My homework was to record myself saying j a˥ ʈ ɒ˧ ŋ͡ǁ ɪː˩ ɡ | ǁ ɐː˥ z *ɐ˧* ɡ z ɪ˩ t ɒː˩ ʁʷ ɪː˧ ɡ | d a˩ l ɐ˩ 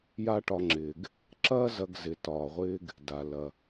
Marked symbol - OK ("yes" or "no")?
yes